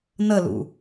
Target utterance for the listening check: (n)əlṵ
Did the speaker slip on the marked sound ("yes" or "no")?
no